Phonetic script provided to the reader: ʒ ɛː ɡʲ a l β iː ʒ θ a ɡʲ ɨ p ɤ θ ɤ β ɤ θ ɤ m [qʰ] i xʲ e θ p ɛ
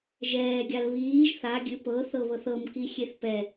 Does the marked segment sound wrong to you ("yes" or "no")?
yes